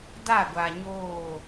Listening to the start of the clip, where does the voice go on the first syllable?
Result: falling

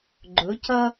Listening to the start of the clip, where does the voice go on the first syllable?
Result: rising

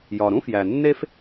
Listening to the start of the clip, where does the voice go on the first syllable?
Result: low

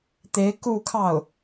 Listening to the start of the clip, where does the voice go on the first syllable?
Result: rising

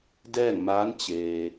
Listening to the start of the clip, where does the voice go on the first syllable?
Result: falling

